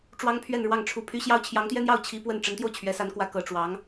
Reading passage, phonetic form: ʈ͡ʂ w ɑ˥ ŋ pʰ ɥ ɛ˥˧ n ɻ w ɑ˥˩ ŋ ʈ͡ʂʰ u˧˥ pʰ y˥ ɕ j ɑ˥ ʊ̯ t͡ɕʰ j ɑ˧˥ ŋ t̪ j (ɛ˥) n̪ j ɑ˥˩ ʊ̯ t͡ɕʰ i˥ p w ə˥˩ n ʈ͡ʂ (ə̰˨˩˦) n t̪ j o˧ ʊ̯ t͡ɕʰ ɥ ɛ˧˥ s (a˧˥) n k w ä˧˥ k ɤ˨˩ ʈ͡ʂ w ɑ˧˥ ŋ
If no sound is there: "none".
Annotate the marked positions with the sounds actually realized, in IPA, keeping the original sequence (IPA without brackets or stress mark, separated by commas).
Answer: ɛ˥, ə˧˥, a˧˥